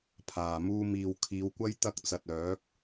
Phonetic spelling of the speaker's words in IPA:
pʰaː˨˩muː˧ miː˨w kʰiː˨˧wkʷɐ˥j t̪ɐ˥k̚t͡sɐ˨t̚œː˨˥k̚

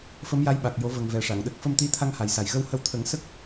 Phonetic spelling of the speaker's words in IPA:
fə˧˥mja˧˥jɓa˨˩k̚jo˨˩˦ və˨˩ŋvɛ˨˩ ʂa˨˩˨ŋɗə˦˥k̚ fə˧mt̪i˧˥t̪ʰa˧ŋ ha˨˩jsa˨˩j ɣə˧whə˧wt̪ʰə˨˩˦ŋ sə˦˥k̚

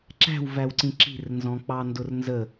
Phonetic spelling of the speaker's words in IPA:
ǁæ̤wvæwǀĩ ǁi̤rnzɔ̃k͡pɑ ndʊrnzə

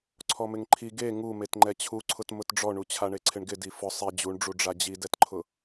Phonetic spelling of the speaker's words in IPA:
ǀʰɔmɪŋǃʰi ɡe ŋu metŋ͡ǃɛt͡ɕʰuǀʰʊt mʊtɖ͡ʐɔɳu t͡ɕʰaɳeǀʰɪɳɡɪ difʊ sˤi d͡ʑuɳɖ͡ʐu ɖ͡ʐad͡ʑidɛtǃʰʊ

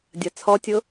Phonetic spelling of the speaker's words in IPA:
dʲɐt͡sʰɔtʲʊ

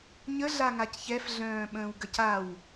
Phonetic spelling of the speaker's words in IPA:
ɲəɮaŋac çɛfɮœ̃ːɓə̃ːwɡəc aw

